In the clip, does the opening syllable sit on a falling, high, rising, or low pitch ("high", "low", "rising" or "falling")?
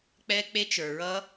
high